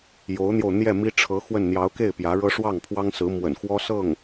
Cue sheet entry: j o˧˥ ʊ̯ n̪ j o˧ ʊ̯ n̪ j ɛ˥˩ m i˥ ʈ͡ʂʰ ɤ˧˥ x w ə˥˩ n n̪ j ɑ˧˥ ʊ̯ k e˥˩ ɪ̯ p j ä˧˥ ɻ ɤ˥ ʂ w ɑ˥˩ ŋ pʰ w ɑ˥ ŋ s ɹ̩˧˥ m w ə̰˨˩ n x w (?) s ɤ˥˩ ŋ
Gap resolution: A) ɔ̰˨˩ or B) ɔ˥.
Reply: B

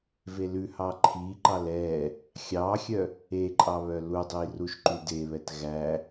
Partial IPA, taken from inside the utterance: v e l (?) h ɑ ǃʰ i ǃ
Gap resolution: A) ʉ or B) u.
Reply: A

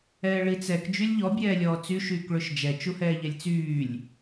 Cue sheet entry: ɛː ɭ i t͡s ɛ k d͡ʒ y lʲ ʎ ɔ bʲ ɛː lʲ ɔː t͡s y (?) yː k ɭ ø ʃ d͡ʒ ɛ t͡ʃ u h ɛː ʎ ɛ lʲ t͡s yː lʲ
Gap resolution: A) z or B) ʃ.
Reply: B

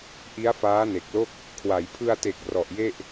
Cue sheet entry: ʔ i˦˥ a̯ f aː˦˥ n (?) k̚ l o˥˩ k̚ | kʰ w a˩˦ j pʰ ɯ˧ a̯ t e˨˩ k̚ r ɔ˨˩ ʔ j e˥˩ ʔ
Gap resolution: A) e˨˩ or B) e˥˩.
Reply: A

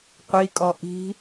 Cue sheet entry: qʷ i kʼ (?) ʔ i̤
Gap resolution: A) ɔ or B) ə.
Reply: A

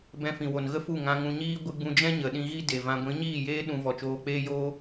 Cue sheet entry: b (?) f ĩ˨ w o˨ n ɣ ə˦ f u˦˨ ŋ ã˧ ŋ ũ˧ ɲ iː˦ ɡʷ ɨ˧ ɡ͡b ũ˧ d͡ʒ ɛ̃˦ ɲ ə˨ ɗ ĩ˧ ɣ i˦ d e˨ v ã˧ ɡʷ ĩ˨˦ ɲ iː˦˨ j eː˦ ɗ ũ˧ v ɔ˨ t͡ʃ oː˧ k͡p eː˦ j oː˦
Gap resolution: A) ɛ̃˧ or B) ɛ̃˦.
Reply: A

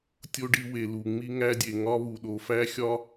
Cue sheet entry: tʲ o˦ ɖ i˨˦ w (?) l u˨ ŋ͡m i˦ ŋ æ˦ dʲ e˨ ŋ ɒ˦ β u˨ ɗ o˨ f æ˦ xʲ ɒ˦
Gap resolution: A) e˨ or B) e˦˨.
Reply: A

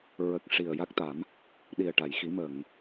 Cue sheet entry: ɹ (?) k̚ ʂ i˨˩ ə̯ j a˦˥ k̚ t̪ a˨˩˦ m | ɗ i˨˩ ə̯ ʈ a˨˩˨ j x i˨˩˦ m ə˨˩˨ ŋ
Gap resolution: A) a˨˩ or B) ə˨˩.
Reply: B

